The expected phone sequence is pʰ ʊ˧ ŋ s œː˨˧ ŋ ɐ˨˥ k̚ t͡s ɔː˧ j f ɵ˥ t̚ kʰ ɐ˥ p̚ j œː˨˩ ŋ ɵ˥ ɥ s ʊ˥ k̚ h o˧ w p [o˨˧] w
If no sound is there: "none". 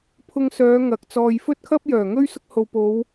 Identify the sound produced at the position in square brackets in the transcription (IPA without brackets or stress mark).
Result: o˨˧